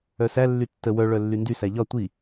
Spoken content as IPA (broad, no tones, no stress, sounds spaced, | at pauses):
œ s æ lː y tː ə w œ ɭ œ lː y n d y s æ ʎ ɒ tʷ i